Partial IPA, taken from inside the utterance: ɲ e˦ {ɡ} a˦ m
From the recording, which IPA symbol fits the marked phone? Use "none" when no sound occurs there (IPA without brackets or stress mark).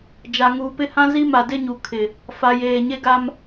ɡ